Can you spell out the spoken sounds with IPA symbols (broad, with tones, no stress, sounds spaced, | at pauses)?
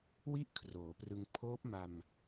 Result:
w i˥˩ ʔ kʰ r oː˩˦ p r ɯ˧ ŋ pʰ oː˦˥ p̚ m a˧ m